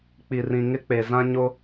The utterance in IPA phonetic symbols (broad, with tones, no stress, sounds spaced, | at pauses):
k͡p i˨ r ĩ˨ ŋ ɪ˦ k͡p e˨ z ã˦ ɲ o˦